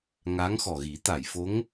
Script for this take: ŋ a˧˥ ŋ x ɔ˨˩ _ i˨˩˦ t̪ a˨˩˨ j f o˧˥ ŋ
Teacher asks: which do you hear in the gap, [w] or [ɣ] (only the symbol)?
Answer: ɣ